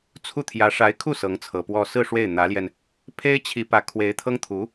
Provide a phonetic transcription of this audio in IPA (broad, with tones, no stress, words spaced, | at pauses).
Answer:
t͡sʰu˥˩t̪ʰjä˧˥ ʂa˧˥ɪ̯kʰu˥˩ sɤ˧˥ŋt͡sʰɤ˨˩pwɔ˥ sɹ̩˥˧ ʂwe˥˩ɪ̯ n̪ä˧˥ljɛ˧n | pʰe˥ɪ̯ t͡ɕʰi˧˥ pä˧˥kʰwe˧˥ɪ̯t̪ʰɤ˥ŋt̪ʰu˧˥